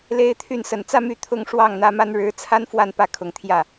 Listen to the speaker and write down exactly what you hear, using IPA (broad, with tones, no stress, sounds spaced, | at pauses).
l e˥ ɪ̯ t̪ʰ y˥˩ n s ə˨˩ n t͡s ä˥˧ m y˥˩ t̪ʰ ʊ˥ ŋ ʂ w ɑ˥˩ ŋ n̪ ä˥ m a˥ n ɻ ɻ̩˧˥ t͡sʰ a˥ n f w a˥˧ n p ä˥˩ kʰ ʊ˨˩ ŋ t̪ʰ j ä˥˩